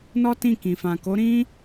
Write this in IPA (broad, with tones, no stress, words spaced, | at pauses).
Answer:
nɔ˦tĩ˦˨kĩ˨fã˨ ko˨˦ɾĩ˦